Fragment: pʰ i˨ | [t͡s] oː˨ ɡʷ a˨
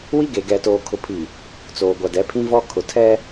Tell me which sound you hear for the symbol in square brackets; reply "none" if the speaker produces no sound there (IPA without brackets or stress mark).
t͡s